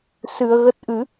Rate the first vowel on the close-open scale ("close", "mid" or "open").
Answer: close